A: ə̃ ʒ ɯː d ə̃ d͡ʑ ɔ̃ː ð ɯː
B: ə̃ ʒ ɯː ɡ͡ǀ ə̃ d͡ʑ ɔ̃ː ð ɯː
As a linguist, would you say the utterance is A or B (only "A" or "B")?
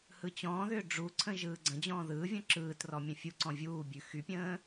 B